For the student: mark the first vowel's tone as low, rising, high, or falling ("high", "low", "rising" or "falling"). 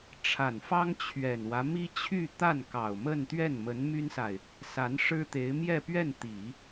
low